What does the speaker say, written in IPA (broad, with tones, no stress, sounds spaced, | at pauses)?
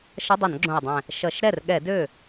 ʃ ʌ˧˥˧ dˤ ʌ˧˩˧ n ɡ͡ǁ õ˨˩ i̯ dˤ ɛ̃˨˩ | ʃ ʌ˧˩˧ ʃ ɾ ɛ˥˩ r ɠ ɛ˧˩˧ d ø˥˩